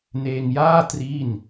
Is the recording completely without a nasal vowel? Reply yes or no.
yes